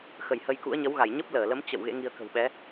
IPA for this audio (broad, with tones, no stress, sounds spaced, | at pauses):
x ə˧˩ j h ə˧ j k ṵ˧˥ ə̯ ɲ ə˨˦ w ɣ a˧˩ j ɲ ə˦˥ p̚ l əː˧˩ l ə˨˦ m t͡ɕ ə̰˧˨ w ɣ ḛ˧˥ ŋ i˧ ə̯ k ə̤˨˩ w ɓ ɛ˨˦